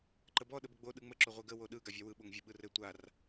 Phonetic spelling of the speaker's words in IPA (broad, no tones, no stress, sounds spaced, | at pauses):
ǃ ə b ɔ ɗ ə b ə ɡ͡b o ɗ ɯ ŋ͡m ə ǁ o ʁʷ e ɡ ə w o ɗ ɯ ɡ a vʲ a w ɯ ɓ o ŋ vʲ ə ɓ ɯ r ɘ tʷ a r